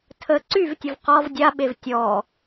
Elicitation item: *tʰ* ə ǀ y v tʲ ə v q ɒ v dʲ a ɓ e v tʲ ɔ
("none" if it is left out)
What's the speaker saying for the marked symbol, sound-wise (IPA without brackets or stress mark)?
tʰ